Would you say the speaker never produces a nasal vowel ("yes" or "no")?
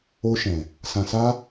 no